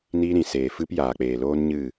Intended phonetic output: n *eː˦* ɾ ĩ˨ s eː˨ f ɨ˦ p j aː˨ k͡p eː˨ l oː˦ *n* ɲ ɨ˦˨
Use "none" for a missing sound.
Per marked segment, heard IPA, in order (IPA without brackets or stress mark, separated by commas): iː˦, n